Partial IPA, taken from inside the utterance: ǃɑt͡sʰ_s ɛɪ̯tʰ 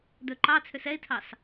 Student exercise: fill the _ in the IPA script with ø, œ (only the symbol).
ø